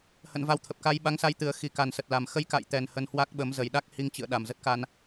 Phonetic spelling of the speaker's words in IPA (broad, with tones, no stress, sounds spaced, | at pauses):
h ə̰˧˨ n v a˨˦ w t̪ʰ ə˨˩ p̚ k a˧ j ɓ a˨˦ ŋ s a˧ j t̪ ɨ˨˩ ə̯ x i˨˩ k a˨˩ n s ə˨˩ t̚ l a˨˩ m x ə˧ j k a̰˧˨ j t̪ ɛ˨˩ n h ə˧ n h w a˦˥ k̚ ɓ ə˨˦ m z ə˨˩ j ɗ a˦˥ k̚ h i˧ ŋ t͡ɕ ɨ̰˧˨ ə̯ ɗ a˨˩ m z ə˦˥ t̚ k a˧ n